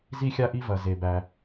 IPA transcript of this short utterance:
z i˥ xʲ a˥ ʔ i˥ v ɐ˩ z e˩ b æ˩

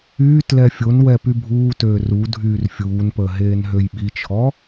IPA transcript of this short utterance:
yː t l ɛ fʲ o n w ɛ p y bʱ uː t øː r u dʱ yː r fʲ uː n p əː ɦ eː n ɦ ø j ɓ i t͡ʃʰ ɔ

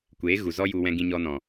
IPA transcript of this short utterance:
kʷ eː˨˦ ɣ u˨ z ɔ˦ j u˧ w ɛ̃˧ ɡ ĩ˧ ɲ ɔ˧ n ɔ̃˨

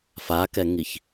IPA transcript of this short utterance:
f a k ɛ ŋ i ç

